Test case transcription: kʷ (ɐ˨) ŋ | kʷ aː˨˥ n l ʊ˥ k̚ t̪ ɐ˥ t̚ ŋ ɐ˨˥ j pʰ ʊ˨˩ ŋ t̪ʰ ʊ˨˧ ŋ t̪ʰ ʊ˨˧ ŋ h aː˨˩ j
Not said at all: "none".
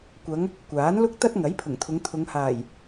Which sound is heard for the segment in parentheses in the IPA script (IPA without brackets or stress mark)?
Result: ɐ˨˧